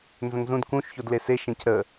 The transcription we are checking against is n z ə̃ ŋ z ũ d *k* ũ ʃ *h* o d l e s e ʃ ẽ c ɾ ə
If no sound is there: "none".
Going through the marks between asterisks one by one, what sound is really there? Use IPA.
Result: k, ç

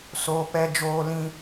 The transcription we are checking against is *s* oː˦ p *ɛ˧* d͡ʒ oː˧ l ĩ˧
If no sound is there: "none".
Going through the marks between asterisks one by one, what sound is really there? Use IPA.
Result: s, ɛ˧

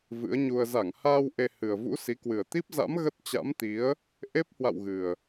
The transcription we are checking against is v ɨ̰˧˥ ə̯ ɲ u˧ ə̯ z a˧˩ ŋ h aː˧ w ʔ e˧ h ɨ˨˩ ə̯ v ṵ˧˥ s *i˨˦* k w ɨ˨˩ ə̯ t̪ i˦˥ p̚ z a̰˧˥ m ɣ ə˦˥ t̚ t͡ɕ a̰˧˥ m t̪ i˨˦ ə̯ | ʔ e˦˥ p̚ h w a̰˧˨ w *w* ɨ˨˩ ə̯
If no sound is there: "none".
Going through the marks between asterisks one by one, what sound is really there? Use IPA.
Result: i˨˦, ɣ

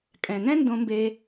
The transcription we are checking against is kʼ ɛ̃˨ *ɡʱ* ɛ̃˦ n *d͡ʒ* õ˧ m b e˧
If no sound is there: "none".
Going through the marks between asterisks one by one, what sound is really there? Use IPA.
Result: ŋ, d

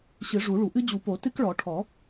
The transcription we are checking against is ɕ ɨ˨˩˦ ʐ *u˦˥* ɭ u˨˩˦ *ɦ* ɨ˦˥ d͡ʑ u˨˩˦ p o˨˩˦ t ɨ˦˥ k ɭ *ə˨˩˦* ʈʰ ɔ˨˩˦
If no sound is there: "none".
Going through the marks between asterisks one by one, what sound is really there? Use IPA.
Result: u˨˩˦, ʔ, ɔ˨˩˦

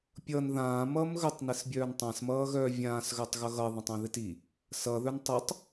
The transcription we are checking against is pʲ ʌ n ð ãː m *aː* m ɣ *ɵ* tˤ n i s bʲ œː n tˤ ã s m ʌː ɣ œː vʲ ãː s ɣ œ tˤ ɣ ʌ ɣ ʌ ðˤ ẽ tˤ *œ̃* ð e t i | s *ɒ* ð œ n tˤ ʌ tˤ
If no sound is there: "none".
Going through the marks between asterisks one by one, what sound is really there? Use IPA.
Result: ʌː, ɵ, œ̃, ʌ

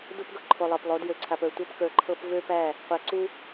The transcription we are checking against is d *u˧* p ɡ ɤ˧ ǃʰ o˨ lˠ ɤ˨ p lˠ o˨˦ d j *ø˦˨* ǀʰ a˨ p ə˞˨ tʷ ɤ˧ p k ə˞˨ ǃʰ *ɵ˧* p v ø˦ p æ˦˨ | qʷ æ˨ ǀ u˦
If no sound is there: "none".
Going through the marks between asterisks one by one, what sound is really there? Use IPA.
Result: u˧, ø˨, ɤ˧

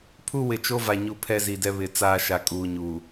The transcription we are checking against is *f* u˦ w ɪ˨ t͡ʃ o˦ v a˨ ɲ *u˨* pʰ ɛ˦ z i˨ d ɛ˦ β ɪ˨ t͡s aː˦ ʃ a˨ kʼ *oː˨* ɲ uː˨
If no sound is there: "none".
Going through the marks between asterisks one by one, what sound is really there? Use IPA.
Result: pʰ, u˦˨, uː˨

